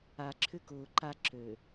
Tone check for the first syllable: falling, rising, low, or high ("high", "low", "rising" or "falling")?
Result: low